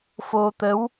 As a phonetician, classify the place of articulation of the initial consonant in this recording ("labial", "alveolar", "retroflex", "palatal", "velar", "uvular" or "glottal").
labial